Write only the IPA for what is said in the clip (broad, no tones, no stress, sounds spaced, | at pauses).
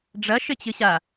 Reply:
ɖ͡ʐ ɐ ʃ ɘ t͡ɕ ɨ ɕ a